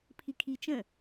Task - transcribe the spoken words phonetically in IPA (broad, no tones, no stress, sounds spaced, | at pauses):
pʰ i kʰ i t͡ʃ ə̃